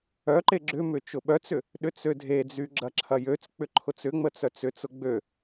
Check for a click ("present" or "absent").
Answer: present